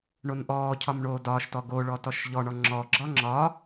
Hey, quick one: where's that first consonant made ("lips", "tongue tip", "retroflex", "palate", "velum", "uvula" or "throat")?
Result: retroflex